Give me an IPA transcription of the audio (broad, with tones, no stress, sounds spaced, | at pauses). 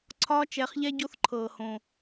ǀʰ ɒː˦ t͡ʃ ɛ˨˦ χ ʎ ɛ˦ ɟ o˦ θ ǃʰ ɤː˨ h õ˨